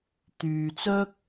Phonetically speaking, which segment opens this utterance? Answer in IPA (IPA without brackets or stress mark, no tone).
t̪